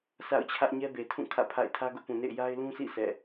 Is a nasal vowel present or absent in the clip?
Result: present